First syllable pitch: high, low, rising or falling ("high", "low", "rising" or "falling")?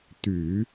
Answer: low